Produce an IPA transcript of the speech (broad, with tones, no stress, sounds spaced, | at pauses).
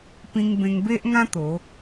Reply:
p ĩ˧ ŋ b ẽ˧ ŋ b e˦ ʔ ŋ ã˦ t̪ o˨˦